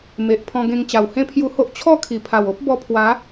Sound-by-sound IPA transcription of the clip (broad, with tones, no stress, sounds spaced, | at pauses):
m e˨ ʔ pʰ ɔ̃˧ ɡ ẽ˧ ŋ t͡ɕ a˨˩ w h ẽ˦ pʰ j u˧ h o˦ ʔ t͡ɕʰ ɔ˥˧ kʰ i˨˩ pʰ a˨˩ w o˦ p̚ b ɔ˧ pʰ w a˨˦